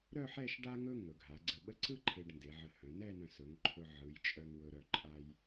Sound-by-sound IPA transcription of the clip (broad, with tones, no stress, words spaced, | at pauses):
ɾœ˥˧ħɛ˥˧ʃ ɖa˥ŋɵ˥ ŋɵ˩˧ɡʱa˩˧ɡ͡ǀə˧˩ɓə˥ ǀɯ˥ ǃʰe˧ɖnde˩˧ʕə˧˩hœ̃˩˧ nɛ˥˧nœ̃˧˩sɵ˩˧ŋ ǃʰɵ˧ʕɯ˩˧jt͡ʃʼœ˧ŋ wɵ˧ ɾœ˧˩ǃʼa˧j